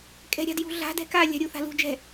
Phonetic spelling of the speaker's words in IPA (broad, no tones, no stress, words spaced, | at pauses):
kʼɛ̤ɾʲa̤djṳɮa̤ dɛ̤ka lʲa̤ɾʲu θa̤lṳ d͡ʒɛ̤